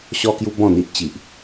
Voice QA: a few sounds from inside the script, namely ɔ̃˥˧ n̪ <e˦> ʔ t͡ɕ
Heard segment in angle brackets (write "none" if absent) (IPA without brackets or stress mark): i˦